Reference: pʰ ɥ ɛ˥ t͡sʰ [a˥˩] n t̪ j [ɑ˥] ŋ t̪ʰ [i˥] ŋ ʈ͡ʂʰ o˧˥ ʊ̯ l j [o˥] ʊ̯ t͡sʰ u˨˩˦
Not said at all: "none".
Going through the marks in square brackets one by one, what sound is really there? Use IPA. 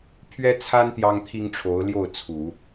a˥, ɑ˥, i˥, o˥˩

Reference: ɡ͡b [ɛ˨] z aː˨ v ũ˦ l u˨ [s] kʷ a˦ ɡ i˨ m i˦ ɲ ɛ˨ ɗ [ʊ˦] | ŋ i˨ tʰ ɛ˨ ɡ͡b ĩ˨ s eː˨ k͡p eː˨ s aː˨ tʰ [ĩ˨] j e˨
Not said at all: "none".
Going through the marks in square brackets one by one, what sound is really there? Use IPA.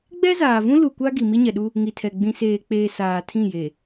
ɛ˦, none, u˦, ĩ˦˨

